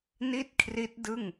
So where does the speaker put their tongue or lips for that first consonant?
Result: tongue tip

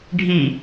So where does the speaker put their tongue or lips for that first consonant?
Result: retroflex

